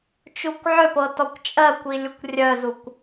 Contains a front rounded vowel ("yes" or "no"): yes